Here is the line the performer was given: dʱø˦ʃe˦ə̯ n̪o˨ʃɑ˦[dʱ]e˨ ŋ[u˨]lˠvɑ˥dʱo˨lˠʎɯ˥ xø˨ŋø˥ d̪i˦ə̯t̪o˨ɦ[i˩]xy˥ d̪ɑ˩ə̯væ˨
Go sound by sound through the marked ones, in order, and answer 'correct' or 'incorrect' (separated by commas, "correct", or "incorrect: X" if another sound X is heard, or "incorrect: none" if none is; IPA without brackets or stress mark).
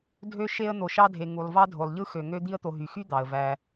correct, correct, incorrect: y˩